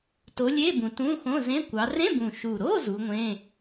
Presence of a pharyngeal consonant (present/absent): absent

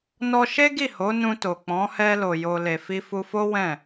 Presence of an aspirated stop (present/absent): absent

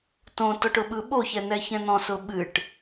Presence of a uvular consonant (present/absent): absent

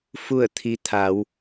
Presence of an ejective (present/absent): absent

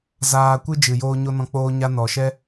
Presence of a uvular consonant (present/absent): absent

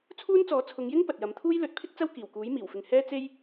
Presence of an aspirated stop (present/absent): present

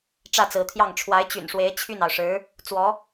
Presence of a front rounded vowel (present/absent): present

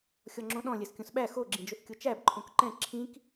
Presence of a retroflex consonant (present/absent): absent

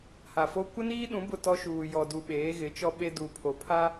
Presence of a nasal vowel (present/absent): present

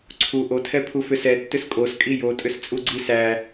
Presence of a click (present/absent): present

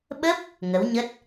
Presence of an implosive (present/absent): present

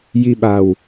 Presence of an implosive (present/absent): present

